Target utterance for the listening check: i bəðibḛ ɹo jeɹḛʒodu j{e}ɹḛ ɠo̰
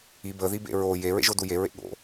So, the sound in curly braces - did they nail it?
yes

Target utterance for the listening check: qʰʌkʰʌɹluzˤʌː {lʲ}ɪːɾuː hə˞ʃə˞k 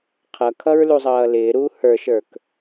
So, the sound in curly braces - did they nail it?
no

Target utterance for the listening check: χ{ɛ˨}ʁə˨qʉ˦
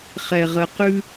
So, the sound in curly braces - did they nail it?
yes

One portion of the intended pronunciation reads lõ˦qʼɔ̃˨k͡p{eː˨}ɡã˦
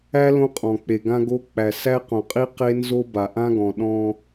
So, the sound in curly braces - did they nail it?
no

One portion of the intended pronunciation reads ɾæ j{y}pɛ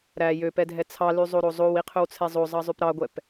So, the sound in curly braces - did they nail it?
no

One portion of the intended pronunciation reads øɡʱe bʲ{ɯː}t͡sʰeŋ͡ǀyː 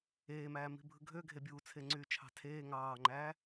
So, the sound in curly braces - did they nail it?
no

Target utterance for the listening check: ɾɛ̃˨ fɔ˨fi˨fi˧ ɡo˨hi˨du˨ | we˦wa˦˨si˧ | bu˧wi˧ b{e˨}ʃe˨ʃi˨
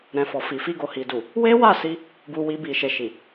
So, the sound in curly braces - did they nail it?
no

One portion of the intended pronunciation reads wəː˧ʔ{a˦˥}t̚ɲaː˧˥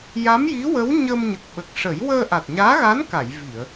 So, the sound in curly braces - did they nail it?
no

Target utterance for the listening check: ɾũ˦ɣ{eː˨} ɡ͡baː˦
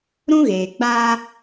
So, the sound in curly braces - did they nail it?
yes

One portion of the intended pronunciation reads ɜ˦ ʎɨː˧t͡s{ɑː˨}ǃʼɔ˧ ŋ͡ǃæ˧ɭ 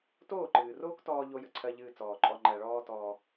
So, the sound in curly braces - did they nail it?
no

